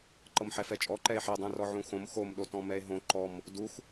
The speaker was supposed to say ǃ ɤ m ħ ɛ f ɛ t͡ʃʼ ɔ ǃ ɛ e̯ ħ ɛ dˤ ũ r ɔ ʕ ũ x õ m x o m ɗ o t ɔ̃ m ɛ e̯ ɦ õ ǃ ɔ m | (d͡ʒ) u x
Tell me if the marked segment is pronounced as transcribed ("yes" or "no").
no